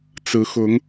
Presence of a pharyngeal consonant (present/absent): absent